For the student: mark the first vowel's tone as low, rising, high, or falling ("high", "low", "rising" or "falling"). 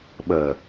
low